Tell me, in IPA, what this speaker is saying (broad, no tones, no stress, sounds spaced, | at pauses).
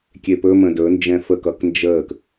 kʲ e p ɵ m ə̃ d ɵ n d͡ʒ ɛ̃ f ə k ʌ k n d͡ʒ əː k